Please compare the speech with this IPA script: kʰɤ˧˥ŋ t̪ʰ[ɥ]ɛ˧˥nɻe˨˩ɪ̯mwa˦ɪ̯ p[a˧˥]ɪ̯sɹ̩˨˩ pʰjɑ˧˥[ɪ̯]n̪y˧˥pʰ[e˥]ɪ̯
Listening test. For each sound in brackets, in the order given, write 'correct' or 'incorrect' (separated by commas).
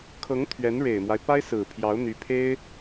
correct, incorrect, incorrect, correct